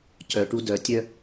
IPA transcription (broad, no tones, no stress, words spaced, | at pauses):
cœʈu dœtʲœ